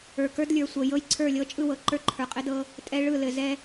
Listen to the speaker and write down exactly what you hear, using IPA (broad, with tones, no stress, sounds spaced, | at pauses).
ə˞˨ k ə˞˦ d lʲ ə˞˨ sʷ ɤ˨ j ɤ˦ j ǀʰ ə˞˦˨ lʲ ɤ˦ t͡ʃʼ ɯ˦˨ w ɤ˨ ǃ ə˞˦ ǃʰ ə˞˨ qʼ ɘ˦ d ɤ˦ | tʼ ɛ˦ ɭ ɯ˦˨ l ɘ˨ z ɛ˦